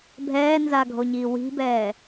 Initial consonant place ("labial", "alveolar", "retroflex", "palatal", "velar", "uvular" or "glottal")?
labial